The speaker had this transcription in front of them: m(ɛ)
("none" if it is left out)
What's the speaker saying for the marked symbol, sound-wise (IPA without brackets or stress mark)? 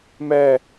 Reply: ɛ